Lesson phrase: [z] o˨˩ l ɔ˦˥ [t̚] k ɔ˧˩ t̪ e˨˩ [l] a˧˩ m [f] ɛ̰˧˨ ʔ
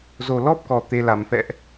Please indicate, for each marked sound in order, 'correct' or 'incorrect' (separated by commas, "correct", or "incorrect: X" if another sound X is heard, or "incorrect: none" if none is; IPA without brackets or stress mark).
correct, incorrect: p̚, correct, correct